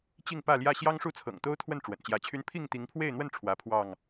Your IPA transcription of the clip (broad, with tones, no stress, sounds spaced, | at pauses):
t͡ɕ i˥˨ ŋ p ä˥˨ l j ä˥˨ ɕ j ɑ˦ ŋ ʂ u˥˨ t͡sʰ ɤ̰˨˩ ŋ t̪ o˦ ʊ̯ t̪ʰ w ə˥˨ n ʈ͡ʂ w ə̰˨˩ n t͡ɕ j ä˨˦ t͡ɕʰ y˦ n pʰ i˥˨ ŋ t̪ i˨˦ ŋ pʰ w e˥˨ ɪ̯ n̪ w ə˥˨ n ʈ͡ʂʰ w ä˨˦ pʰ w ɑ˥˨ ŋ